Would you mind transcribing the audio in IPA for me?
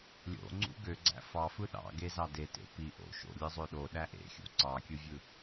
lʲ o̰ ŋ͡ǀ ṵ ɡ ø ɡ͡ǀ æ̰ f ɑ f ɯ ɗ ɑ̰ ɡ e z ɑ d e t ḛ p i ʔ o̰ ʃ o̰ lʲ ɯ zˤ ø ɗ o ɗ æ ʔ ḛ xʲ ṵ ǀ ɑ kʲ ɯ vʲ ɯ

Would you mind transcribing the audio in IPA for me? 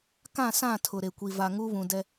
k ã˦˨ s ã˦˨ tʰ ʊ˨ ɾ e˨ kʷ i˨ v a˨ ŋ u˦ β ũ˨ d ɛ˦

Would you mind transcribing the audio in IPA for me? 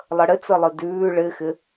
lˠ ə ɽ ɪ t͡s ə lˠ ɨ d ʉː ɭ ɪ x ɪ

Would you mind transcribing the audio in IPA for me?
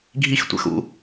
ɡʱ i x tʷ ɛ̰ x ṵ

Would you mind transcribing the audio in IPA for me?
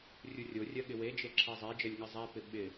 rʲ u rʲ o rʲ ɜ ɠ ɪ w e d͡ʒ e ǁʰ ɜ zˤ e d͡ʒ ɜ lʲ ŋ ɪ zˤ ɛ p ɪ ɓ ɪ

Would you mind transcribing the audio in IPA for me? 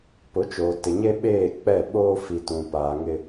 p ʊ˨˦ t͡ʃ oː˨ t ɪ˨ ɲ e˦ ɓ eː˦˨ k͡p ɛ˦˨ ɓ oː˦ f i˨ t ũ˨ p aː˨ ŋ ɪ˦

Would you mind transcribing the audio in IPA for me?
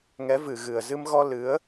ŋ ɛ˨˦ v ɨ˨˩ ɣ ɨ˨˩ ə̯ z ɨ˧ m ɣ ɔ˧ l ɨ˨˦ ə̯

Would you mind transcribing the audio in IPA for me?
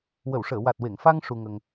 w ə˨˩˨ w ʂ əː˨˩˨ w a˨˩ t̚ w e˨˩˨ ŋ f a˧ ŋ ʂ u˧ ŋ ə˧ ŋ

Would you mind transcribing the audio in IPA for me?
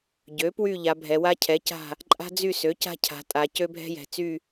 ɟ ø˩˥ p w y˦˨ ʎ a˩˧ bʱ ɛ˩˧ w a˦ cʰ ɛ˩˥ c a̤˦˨ | ǃʼ a̤˦ d͡z y˦˨ s ø˩˥ c a̤˦ cʰ a̤˩˧ tʼ a˩˧ c ø˦ bʱ ɛ̤˦ j ɛ̤˩˧ t͡s y˦˨

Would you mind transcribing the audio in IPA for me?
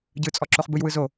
ɟ ɯ t͡sʼ ɔ ǁ o χ b ɯ j w ɯ z o

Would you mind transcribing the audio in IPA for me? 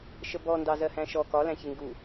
ʃ ə b ɔ n d ɑ z ɜ h æ̃ ʃ ɔ k ɒ l æ̃ ç ɪ ŋ ɡ u

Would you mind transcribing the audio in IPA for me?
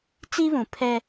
t͡s i˦ β ũ˨ pʰ ɛ˦

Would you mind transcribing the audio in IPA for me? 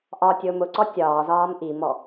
ʔ ɒ tʲ ʊː m ʊ ǀ ɔ tʲ ɒː z ɒː m ʔ i m ɔ

